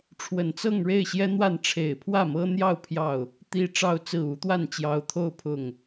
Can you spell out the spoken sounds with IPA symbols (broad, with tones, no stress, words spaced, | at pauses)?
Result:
ʈ͡ʂʰwə˨˩nt͡sɤ˥˧ŋ ɻe˥˩ɪ̯ɕjɛ˥n̪wa˥˩n ʈ͡ʂʰe˨˩ɪ̯pʰwä˥˩mɤ˥n̪jɑ˥˧ʊ̯ pʰjɑ˥˩ʊ̯ | t̪i˥ ʈ͡ʂɑ˥˧ʊ̯t͡sɹ̩˥˩ u˧˥t̪wa˥˩nt͡ɕjɑ˧˥ʊ̯t̪ʰo˥˧ʊ̯ pʰʊ˥˩ŋ